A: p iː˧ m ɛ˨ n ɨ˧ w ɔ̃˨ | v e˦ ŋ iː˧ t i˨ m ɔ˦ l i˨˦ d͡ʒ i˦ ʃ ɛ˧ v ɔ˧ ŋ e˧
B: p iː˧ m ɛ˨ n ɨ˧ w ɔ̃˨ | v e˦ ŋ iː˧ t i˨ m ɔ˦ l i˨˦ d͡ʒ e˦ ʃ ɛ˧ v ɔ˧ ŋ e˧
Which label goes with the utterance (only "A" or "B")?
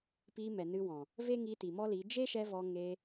B